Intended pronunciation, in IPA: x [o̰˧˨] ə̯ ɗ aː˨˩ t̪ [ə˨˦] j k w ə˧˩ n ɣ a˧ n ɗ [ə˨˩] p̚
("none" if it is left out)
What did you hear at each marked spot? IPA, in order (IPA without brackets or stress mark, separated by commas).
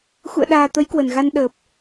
ṵ˧˨, ə˨˦, əː˨˩